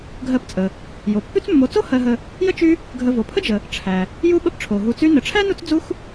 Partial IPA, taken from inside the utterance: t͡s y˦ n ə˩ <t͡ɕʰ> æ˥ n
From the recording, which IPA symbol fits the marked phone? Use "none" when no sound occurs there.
ʈ͡ʂʰ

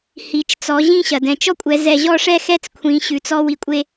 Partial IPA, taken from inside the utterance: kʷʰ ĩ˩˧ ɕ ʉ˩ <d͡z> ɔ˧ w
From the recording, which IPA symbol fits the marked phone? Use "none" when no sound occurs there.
t͡s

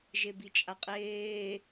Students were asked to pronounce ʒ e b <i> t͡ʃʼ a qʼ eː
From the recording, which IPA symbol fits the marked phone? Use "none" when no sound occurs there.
i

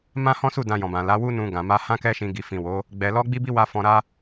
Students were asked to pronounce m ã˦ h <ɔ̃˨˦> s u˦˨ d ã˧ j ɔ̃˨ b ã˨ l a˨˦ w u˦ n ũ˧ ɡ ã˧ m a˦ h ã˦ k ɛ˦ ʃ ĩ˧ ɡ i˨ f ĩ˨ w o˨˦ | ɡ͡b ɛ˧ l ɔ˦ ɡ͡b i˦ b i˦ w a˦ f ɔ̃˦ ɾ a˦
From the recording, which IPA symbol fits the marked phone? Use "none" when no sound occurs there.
ɔ̃˦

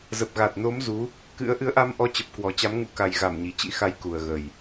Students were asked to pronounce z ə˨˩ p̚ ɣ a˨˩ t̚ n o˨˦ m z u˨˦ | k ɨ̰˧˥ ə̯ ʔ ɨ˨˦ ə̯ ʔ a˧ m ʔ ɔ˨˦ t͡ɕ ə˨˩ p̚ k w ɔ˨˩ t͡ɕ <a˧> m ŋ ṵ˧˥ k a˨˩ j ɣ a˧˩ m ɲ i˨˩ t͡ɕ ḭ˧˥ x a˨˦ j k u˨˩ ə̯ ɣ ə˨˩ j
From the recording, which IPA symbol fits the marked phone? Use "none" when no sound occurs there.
a˨˦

